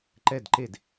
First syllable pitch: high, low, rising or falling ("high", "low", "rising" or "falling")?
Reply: falling